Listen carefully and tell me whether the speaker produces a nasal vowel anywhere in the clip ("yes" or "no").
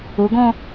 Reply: yes